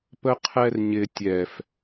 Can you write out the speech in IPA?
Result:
pəqʰɛrɲɪ tʲɛf

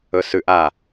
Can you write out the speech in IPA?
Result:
ɵsʉʔa

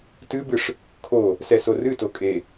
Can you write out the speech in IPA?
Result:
tɨbɨʂ | kʰo | sɛsorɨto kʼe

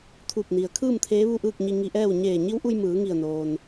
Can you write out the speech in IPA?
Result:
t̪ʰu˧˩p̚ni˩ə̯ kʰɯː˥˨mt̪ʰeː˧˥ ʋu˥˨ʔɯː˥˨k̚ɲi˧ ŋi˧ʔɛː˥˨w ɲeː˧˩ɲi˧˥wʔu˧j mɯː˩˧ŋi˧˩ə̯noː˩n

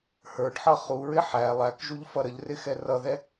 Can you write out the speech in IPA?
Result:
hə˞ɖħʌ χuɹɪ ħæ lˠækʒuʎfʌ ɾəʎrɪxɛ rʌðɛ

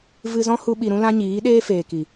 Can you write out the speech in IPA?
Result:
vɨ˧zɔ̃˦hu˧ ɓi˧ɾũ˦lã˦ɲiː˨˦ ɗeː˦feː˨ki˨

